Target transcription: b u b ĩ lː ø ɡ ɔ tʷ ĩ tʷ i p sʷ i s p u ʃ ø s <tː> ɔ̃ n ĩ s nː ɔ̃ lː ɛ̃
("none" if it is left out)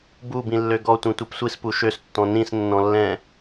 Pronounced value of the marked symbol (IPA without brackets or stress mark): tː